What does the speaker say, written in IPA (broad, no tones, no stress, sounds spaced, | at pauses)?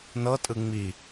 n ɤ tʼ ɯ ŋ͡m i